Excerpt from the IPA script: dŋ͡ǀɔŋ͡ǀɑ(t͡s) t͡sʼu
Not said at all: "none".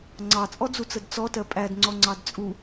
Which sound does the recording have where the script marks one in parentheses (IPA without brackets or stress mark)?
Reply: d